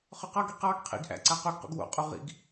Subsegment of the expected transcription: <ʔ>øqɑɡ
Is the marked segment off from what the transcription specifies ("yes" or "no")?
yes